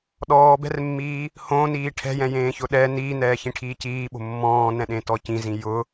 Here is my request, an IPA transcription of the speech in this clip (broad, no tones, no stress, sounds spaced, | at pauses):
ɗ ɔː b ɛ̤ r mː iː | h õ n iː ʈʰ ɛ̤ j ɛ̃ j ẽː ç ʊ ɗ ɛ n iː n ɛː ç ĩ ʈʰ iː c iː ɓ o̤ mː ɔ̃ː n ɛ̃ ɗ ẽ t ɔ c ĩ z ĩ j ʊ